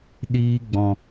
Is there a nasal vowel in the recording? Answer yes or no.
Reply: yes